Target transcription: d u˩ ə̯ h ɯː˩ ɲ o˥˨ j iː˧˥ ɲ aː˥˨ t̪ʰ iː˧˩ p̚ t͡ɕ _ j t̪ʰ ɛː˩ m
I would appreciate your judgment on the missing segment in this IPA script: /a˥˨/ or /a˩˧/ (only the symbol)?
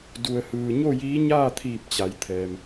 a˩˧